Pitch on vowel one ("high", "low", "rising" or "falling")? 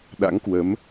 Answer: rising